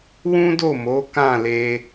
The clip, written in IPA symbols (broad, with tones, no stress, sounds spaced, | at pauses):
w ũ˦ d o˦˨ m o˨˦ k ã˦˨ l e˧